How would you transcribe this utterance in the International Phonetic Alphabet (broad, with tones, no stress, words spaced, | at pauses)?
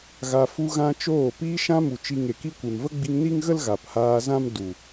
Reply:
ɣa˧ fu˧ɣã˧ t͡ʃoː˦˨ piː˧ʃã˧mu˨ t͡ʃi˧ ŋe˨ki˧kʷe˨mvə˦ ɡ͡bi˧ŋni˦ŋɣə˦l ɣa˨phaː˧ zã˦m du˨